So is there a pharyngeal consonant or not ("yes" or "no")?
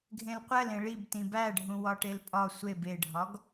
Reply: no